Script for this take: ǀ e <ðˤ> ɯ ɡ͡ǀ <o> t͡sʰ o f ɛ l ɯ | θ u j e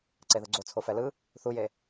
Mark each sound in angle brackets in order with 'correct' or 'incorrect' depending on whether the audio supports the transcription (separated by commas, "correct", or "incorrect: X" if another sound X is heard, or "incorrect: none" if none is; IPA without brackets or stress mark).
incorrect: ð, correct